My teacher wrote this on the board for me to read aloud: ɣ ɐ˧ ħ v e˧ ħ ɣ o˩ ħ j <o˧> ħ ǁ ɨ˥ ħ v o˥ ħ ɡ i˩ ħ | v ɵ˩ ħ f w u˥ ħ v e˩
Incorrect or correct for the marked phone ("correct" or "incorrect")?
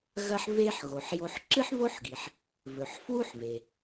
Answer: correct